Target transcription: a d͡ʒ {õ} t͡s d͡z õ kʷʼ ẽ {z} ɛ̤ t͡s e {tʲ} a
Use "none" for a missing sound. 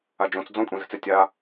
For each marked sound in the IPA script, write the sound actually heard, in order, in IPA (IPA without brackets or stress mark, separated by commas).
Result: õ, z, tʲ